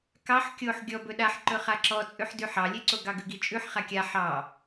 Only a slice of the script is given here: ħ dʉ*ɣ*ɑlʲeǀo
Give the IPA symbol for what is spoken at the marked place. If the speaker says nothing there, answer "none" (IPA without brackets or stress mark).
ħ